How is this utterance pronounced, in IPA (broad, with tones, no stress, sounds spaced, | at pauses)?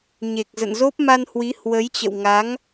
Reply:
ɲ e˨˩ k̚ z ə̰˧˨ n z o˦˥ p̚ m a˧ n h w i˨˦ h w ə˨˦ j t͡ɕ ə̰˧˨ w ŋ a˨˦ ŋ